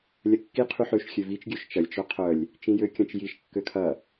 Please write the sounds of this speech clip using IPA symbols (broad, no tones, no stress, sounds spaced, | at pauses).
lʲ ɐ kː i qʰ y ħ ø ʃ xʲ ø v i t͡ʃ ɡʲ ø ʃ t͡ʃ ɐ lʲ t͡ʃ œ qʰ œ lʲ | t͡ʃ ĩ j ø kʲ ɐ̃ t͡ʃ j i ʃ kː ø kʰ ɐ